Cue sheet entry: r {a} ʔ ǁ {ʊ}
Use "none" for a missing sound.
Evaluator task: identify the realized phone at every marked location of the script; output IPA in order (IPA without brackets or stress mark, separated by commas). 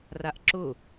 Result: a, ʊ